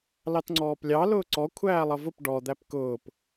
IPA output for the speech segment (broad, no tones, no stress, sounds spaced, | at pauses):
l ɑ t ŋ͡ǀ ɔː p lʲ ɑ l ʊː ǀ ɔ kʷʰ æː lˠ ʌ v ʊ p ɖ ɔ d̪ æ p k ʊː p